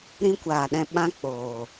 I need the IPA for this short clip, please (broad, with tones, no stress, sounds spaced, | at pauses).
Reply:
ɾ ĩ˧ kʷ aː˨ ɗ ɛ̃˧ ɓ ã˧ k͡p oː˨